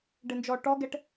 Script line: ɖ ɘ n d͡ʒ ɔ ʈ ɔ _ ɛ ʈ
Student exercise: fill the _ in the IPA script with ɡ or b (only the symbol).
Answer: ɡ